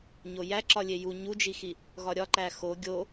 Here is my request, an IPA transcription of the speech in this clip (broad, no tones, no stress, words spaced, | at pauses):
ɲojæ ǁɒlʲeju ɲud͡ʒixi | ɣɒɾʲɒǃæ xo ɡʲo